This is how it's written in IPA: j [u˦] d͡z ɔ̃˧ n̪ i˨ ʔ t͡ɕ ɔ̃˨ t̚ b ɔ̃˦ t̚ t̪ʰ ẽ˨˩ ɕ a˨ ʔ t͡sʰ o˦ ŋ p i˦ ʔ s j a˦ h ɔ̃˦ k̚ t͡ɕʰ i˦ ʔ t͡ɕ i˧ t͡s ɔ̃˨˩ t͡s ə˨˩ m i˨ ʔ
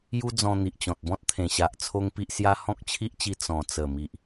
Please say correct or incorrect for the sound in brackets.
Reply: correct